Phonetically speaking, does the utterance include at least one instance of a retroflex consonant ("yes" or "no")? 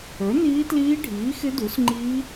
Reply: yes